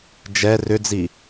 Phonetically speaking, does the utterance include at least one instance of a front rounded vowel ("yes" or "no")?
yes